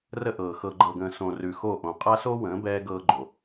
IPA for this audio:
r ə˦ ʔ ɤː˨ x ɤ˨ ɡ͡ǃ ɤ˨ ɡ ə̃ː˨ s õ˨ r ʉ˨ x o˦˨ ʔ õ˨ qʼ a˦ s o˦ w ə̃ː˨˦ b ɛː˦ ɡ ɤː˦ ɡ͡ǃ o˨

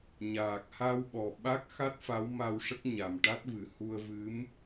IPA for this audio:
ɲ aː˨˩ k̚ h a˧ w ɓ ɔ˨˩ ɓ a˦˥ k̚ x a˦˥ t̚ f a˧˥ w m a˧ w ʂ ə˦˥ k̚ ɲ a˨˩ m ʈ a˦˥ t̚ v ɨ˨˩ h u˧ ə̯ v ɨ˧˥ m

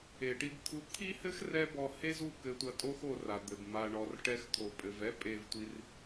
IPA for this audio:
e˨ ʈ i˧ b t̪ʰ u˧ t̪ʰ i˦ h ɘ˦ x r ɛ˦ b ɔ˧ h e˦ z u˦˨ k ɘ˧ tʷ ɐ˧ tʼ o˦ x o˧ r a˨ d̪ ɘ˨ b m a˨ ɳ ɔ˨ r ʈ ɛ˧ x t̪ʰ o˨ pʼ ɘ˨ v ɛ˦ pʼ e˧ v tʷ i˧ r

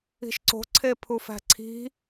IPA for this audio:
i̤ ʃ ǀ o̤ ǀʰ e pʰ u f æ̤ ǀʰ i̤

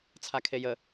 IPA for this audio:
t͡sʰ a kʰ e j ə

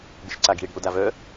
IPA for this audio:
ɡ͡b ɪ ʃ ǀ a ɡ i̤ e̯ ɽ i̤ o̯ d a v œ

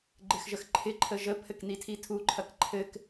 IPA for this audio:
ɡ͡ǃ ɪ x ʒ ə x ǃʰ ɪ ǃʰ ə ʒ ə pʰ ɘ k n i tʰ i tʰ u ǃʰ ɐ k ǃʰ ɘ k

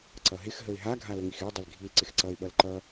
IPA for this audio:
ǀ ʌ ɦ ɪ x ɦ ə ɪ̯ ɦ a ɡʱ a l ə ŋ i x ɪ ʊ̯ dˤ ɪ l ɡʱ i l ǀ ɪ x ǀ ʌ ɪ̯ ɓ ʌ l ǃ ʌ

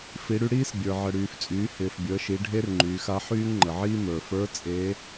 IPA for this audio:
f i˩˧ ɽ y˧ ɽ iː˥ s bʲ ə˞˩ ʕ ə˩ ɽ yː˩ f t͡sʼ yː˩˧ h ɪː˩ f bʲ əː˩˧ ʃ i˩˧ ɖʱ e˥ r ŋ͡ǃ yː˩˧ x a˧˥ ħ yː˥ ŋ ŋ͡ǃ ə˩ ʕ iː˥ m ə˞˩ f ə˞˧˥ t͡sʼ e˧˥

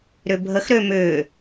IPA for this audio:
ɾ ʏ bʱ ə x ɾ ø m ʏː

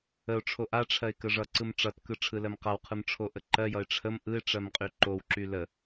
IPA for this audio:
ə ʊ̯ ʈ͡ʂʰ o ʔ a ʈ͡ʂʰ ɜ ɪ̯ k ə ʐ ʌ ǀ ɯ m ʈ͡ʂ ʌ t k ɯ ʈ͡ʂʰ ɯ l ɜ m q a w qʰ ɯ m ʈ͡ʂʰ o ʔ ə ǃ ɜ j ʌ ɪ̯ ʈ͡ʂʰ ə m ʔ ɯ ɪ̯ ʈ͡ʂ ɜ m qʼ y ǃ o w ǁ y l ə

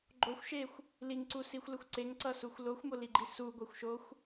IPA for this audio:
ɡ͡ǃ o xʷ ʃ e xʷ | l i ŋ ǀ u s i xʷ l ɯ xʷ ǀ e ŋ ǀ ʌ s u xʷ l o xʷ m o l i ɡ͡ǃ i s u ɡʷ e xʷ ʃ o xʷ

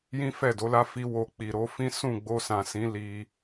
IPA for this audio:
j ĩ˦ f ɛ˦˨ d o˨˦ l a˦ f i˦ w o˧ k͡p i˨ ɾ o˨˦ f ĩ˦ s ũ˦˨ ɡ͡b o˧ s ã˨ s ĩ˨˦ l i˧

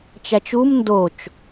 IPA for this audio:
t͡ʃ æ t͡ʃ u m n d o t͡ʃ

